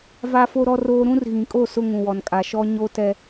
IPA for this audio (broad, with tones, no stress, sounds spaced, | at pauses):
v a˦ f o˦ ɾ ɔ˦ r oː˦ ɾ ũ˦ r ɣ ĩ˨ kʼ o˦˨ s ʊ˦ ŋ ũ˨ w ɔ˨ n kʼ a˨ ʃ ɔ˦ ɲ o˦ t ɛ˦